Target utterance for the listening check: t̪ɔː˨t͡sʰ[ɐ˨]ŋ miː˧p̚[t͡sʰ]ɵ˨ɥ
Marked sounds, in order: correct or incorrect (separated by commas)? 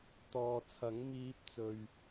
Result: incorrect, incorrect